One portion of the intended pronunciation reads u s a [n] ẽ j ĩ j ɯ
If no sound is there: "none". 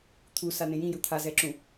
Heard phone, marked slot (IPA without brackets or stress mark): n